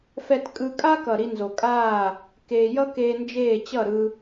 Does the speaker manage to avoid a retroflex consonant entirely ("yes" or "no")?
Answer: yes